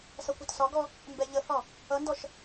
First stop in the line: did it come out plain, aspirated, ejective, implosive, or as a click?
plain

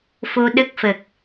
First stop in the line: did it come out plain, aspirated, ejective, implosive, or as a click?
implosive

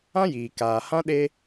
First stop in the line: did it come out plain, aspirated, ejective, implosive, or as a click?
plain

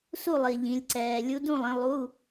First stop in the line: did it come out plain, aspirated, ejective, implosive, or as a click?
click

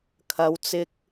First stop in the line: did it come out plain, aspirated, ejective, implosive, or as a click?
aspirated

